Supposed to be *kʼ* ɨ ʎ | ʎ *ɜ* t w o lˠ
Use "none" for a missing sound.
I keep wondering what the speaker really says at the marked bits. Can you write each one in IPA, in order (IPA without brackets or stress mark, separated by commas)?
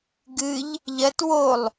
ɡ, ɜ